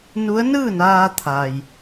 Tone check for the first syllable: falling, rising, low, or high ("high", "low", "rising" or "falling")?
rising